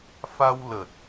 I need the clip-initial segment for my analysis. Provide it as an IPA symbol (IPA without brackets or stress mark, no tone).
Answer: f